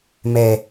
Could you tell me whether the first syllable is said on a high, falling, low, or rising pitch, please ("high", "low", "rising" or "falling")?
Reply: high